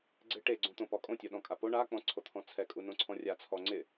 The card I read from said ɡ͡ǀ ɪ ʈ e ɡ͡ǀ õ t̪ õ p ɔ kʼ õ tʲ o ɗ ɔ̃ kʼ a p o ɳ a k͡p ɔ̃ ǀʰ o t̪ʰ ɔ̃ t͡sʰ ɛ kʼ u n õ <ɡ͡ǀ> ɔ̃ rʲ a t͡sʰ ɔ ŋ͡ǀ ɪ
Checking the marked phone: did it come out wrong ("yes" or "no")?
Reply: yes